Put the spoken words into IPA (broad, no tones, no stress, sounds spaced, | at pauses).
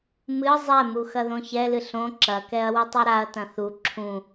m ɨ zˤ ɛ m u x ɐ ð õ ç ɛ l ɨ ɬ õ ǁ ɐ k ɛ ɐ̯ w ɨ tˤ o ɾ a ɐ̯ t ɐ̃ θ u ǁʰ ũ